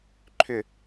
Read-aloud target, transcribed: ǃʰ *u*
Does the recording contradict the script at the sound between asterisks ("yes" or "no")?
yes